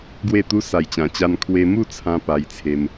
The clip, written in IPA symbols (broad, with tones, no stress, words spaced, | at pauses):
ɡwe˥˧t̪u˦ sa˨˩jt͡ɕã˨˩t͡ɕa˧n kʰwe˧mu˥˧t͡sʰã˧ pa˧jt͡sʰe˧m